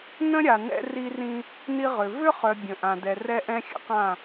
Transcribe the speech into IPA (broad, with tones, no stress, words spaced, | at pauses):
nə̃˦ɾʲa˨ nɛ̰˦ri˦rĩ˦ | ni˦ ʁʏ˨ vʏ˦χœ˨ bʲə̃˨ʔã˨dɛ˨ rɛ˦ʔɛ̃˦xʲə̰˦qã˦˨